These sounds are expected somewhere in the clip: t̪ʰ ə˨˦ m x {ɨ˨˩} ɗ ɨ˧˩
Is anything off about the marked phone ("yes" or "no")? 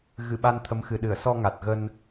no